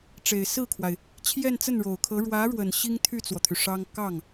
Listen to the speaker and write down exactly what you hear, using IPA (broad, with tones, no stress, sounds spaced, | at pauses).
ʈ͡ʂ e˨˩ ɪ̯ s ɹ̩˥˩ kʰ w a˩ ɪ̯ | t͡ɕʰ j ɛ˥˧ n t͡s ə˥˩ n ɻ o˨˩ ʊ̯ kʰ ɤ˧˥ ɻ w ä˧˥ ɻ w ə˨˩ n ɕ i˥ ŋ t̪ʰ y˥˩ t͡s w ɔ˩ t̪ʰ y˩ ʂ ɑ˥ ŋ k ɑ˥˩ ŋ